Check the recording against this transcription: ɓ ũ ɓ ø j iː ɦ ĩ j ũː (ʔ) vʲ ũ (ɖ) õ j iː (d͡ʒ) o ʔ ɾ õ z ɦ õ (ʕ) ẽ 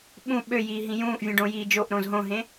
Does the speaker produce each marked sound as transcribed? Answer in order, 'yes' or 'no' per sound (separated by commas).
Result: yes, yes, yes, no